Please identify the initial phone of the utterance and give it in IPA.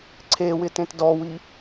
ǀʰ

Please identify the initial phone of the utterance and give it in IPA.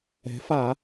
ɛ̤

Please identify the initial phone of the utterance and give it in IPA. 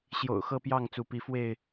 ɕ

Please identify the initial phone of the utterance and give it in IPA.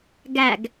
ɡ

